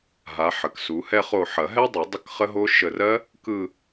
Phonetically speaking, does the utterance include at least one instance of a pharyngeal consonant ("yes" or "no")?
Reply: yes